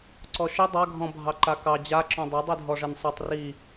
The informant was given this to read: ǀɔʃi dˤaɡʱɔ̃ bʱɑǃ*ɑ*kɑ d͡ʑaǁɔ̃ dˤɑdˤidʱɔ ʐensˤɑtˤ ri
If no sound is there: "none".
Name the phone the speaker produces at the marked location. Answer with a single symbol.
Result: a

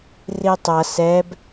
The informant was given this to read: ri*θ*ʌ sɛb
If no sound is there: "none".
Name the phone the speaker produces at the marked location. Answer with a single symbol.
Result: tˤ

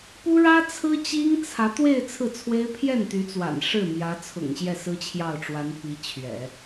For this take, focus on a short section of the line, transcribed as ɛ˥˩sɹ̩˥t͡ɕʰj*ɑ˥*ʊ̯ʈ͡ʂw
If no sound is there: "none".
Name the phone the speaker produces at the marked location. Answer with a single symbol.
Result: ɑ˥˩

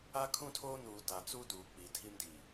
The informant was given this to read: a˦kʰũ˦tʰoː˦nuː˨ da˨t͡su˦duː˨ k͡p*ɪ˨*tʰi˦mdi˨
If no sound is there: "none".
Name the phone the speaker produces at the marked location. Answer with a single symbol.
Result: i˨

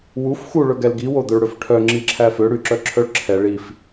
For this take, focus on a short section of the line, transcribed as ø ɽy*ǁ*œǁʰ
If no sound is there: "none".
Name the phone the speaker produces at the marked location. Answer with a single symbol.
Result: ǁ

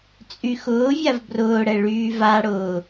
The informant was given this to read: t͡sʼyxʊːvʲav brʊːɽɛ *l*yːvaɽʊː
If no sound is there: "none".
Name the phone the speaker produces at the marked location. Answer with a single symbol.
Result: ɭ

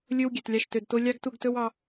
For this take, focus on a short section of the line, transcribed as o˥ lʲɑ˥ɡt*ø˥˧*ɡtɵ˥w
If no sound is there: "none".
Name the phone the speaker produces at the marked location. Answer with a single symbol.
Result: u˥˧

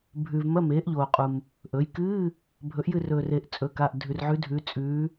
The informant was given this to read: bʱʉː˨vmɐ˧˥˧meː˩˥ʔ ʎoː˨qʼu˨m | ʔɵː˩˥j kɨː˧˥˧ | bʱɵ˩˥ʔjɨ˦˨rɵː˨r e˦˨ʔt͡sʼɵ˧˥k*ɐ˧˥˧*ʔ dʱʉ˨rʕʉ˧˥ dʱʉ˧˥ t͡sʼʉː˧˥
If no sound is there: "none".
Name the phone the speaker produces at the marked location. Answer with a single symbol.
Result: a˧˥˧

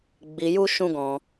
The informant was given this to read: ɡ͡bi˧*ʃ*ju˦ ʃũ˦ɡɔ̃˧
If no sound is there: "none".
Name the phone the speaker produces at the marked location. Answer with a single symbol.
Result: none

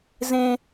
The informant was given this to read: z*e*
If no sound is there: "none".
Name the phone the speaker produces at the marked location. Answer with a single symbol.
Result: ẽ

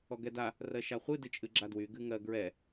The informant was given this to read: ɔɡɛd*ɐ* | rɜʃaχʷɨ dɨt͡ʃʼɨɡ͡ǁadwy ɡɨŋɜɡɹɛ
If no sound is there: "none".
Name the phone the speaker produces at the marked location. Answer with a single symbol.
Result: a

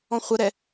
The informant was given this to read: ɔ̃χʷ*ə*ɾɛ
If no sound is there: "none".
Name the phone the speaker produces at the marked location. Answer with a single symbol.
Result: ə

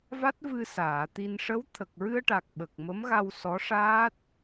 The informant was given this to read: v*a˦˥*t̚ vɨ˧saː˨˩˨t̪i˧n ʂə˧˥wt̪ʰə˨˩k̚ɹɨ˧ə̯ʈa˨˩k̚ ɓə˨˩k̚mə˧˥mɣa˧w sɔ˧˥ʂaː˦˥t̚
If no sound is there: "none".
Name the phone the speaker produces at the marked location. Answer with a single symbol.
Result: a˦˥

